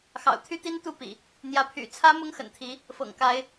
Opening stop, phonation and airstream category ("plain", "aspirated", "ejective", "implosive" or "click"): aspirated